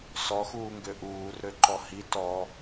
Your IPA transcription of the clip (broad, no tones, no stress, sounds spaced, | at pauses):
s ɔ x uː ŋ ɡ ø ʔ uː r ɾ ø ǃ ɔ h i t ɔ